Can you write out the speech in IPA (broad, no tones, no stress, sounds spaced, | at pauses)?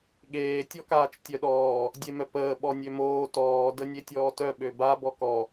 ɠ eː tʲ ɔ k aː t͡ʃ tʲ œ ɗ ɔː | dʲ e m œ p əː ɓ ɔ nʲ ø m oː t ɔː d ə nʲ e tʲ ɔː t œ ɓ ø b a b ɔ k ɔ